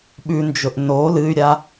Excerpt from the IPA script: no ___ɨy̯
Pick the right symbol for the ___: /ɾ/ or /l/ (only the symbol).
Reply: l